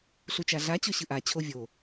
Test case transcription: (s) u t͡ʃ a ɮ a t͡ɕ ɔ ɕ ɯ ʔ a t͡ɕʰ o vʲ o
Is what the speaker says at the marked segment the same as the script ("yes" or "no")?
no